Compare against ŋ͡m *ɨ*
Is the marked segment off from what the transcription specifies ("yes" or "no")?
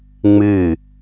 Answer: no